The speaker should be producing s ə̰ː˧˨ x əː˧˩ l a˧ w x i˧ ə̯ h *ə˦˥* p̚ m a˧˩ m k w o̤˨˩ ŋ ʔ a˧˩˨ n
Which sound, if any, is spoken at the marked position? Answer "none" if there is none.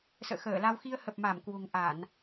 ə˨˩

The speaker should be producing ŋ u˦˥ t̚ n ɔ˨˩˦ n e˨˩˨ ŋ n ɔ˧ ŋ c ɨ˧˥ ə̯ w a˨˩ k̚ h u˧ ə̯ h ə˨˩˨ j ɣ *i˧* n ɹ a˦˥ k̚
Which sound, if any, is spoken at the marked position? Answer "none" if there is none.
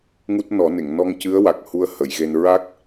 e˧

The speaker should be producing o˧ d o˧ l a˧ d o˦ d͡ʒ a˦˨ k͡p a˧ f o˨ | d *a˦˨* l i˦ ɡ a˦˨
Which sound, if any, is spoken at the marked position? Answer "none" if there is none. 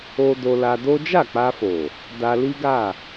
a˧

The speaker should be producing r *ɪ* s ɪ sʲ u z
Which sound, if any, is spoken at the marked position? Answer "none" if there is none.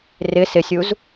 ɪ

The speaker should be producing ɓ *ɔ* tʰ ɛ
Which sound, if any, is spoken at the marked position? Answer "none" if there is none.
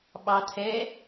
ɑ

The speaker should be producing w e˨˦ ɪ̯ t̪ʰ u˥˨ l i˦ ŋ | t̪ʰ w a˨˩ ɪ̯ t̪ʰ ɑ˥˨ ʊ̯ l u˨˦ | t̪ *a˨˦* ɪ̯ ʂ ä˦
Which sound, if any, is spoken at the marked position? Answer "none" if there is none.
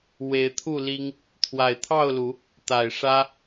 a˨˩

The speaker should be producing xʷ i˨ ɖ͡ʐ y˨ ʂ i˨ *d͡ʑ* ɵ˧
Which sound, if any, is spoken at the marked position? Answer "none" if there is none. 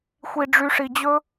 d͡ʑ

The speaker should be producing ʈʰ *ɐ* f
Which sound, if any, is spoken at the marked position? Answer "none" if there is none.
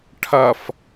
ɐ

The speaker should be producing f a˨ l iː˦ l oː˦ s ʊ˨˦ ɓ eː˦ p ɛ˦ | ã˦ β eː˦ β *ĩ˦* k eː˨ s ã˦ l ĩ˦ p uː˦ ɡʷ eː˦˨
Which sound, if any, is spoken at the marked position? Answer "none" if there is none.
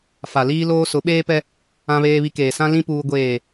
i˦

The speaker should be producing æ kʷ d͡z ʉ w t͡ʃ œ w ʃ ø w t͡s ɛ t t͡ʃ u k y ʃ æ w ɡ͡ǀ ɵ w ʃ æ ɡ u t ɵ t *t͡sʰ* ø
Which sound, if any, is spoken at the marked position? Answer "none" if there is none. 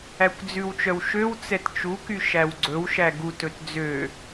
d͡z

